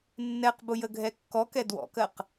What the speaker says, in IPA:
nː ɛ q b ʊ j ə ɡʱ ɛ kː ɔ k ɛ d w ɔ̰ k ɜ q

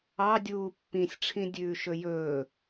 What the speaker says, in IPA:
ɑ dʲ uː pː ĩ sʲ ʈ͡ʂʰ ĩ dʲ ʉː ʃ ɵ j ɵː

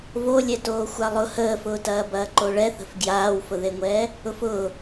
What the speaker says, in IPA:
v o lʲ ɛ t oː xʷ a lˠ ʊ h əː f ʊː t ɐː b ɐː ǃ o ɭ ɛ θ ə̤ f ɡ j aː w f ʊ ð e ŋʷ ɛː | ʊ f ʊː

